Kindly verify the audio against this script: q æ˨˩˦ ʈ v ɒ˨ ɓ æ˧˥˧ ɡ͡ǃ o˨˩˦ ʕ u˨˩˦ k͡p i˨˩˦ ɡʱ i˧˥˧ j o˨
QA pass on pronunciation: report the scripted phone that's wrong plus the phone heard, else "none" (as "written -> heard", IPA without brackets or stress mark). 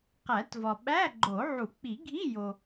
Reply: ʈ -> t